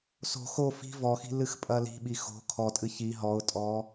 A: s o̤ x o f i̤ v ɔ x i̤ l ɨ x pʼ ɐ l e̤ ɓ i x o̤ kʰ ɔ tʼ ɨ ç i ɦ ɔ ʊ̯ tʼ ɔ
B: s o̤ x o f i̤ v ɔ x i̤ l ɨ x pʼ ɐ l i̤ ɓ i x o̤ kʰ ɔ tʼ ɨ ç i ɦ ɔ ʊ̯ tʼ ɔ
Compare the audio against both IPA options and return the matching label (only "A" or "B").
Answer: B